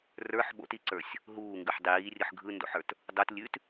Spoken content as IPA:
rə˞ħ ɓo̰tiǀə˞sʲ | ɦuːŋɡʉħ dˤiːrʲɯħ ɡʱɯndo̰ħə˞t | dˤot lʲʉt

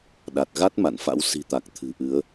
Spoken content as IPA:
ɗa˨˩t̚ ɣa˦˥t̚ ma̰˧˨nfa̰˧˥w si̤˨˩t̪a˨˩k̚ t̪ʰɨ̤˨˩ʔɨ˨˦ə̯

